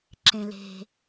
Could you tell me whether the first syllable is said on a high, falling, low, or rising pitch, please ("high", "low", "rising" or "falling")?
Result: low